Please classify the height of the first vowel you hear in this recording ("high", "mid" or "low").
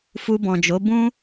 high